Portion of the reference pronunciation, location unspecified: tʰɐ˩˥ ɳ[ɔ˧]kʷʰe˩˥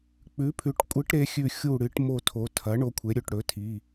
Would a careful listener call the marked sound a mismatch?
yes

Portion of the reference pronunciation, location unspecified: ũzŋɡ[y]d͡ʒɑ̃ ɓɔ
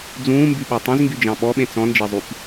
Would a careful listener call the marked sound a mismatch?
no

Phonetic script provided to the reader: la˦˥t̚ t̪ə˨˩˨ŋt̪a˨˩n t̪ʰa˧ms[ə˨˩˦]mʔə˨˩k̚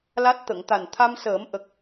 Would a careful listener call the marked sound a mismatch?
yes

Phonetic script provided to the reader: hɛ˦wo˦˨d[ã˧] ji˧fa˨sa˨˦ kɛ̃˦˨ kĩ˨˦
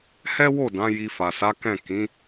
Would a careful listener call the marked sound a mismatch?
yes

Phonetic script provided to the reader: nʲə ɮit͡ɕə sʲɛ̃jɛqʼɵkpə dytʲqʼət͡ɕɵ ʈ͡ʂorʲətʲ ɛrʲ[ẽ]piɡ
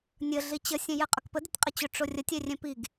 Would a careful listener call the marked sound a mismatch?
yes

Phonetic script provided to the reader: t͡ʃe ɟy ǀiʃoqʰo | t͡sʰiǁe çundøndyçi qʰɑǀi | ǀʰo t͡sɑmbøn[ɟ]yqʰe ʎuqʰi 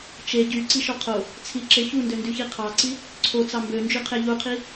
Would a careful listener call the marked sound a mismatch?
yes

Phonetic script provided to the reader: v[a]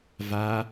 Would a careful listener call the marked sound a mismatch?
no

